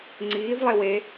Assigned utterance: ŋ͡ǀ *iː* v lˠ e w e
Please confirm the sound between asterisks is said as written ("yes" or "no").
yes